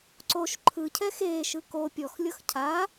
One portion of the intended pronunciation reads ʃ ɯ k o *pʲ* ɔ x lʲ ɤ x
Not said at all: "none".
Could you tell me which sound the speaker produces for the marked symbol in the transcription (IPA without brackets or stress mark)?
pʲ